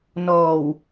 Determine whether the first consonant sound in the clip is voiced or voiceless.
voiced